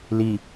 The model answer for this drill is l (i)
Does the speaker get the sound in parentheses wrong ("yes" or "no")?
no